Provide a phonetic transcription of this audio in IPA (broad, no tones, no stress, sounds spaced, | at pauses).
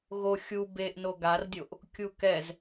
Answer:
ɣ o xʲ u b e ʔ n o ɡ a r dʲ o ʔ | kʲ u k ɛ z